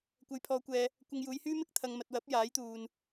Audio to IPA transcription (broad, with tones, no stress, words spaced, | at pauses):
kʷɐ˨˧jpʰɔː˨˧kʷɛː˨ | kʷɐ˧ŋjuː˨˧jhyː˥ mɪ˥k̚t̪ʰɐ˨ŋ mɐ˨t̚wɐ˨˥p̚ jaː˨˥jt̪uː˨n